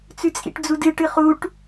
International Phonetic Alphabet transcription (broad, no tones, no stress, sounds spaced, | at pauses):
t͡s ʉ t͡sʼ ḭ ʈ d͡z u d ɨ ʈ ɨ χ u ʈ